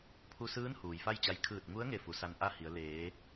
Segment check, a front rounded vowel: absent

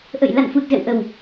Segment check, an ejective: absent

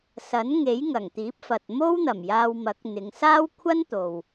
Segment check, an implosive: absent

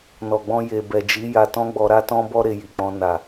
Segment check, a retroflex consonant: absent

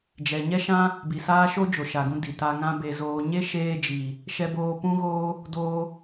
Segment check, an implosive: absent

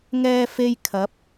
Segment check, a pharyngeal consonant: absent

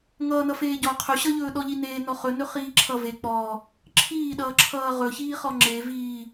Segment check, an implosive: present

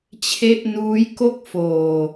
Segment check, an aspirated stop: present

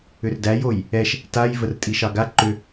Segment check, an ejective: present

